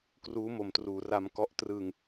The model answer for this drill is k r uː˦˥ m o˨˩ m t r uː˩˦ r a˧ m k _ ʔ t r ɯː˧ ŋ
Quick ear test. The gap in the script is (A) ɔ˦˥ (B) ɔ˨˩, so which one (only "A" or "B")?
A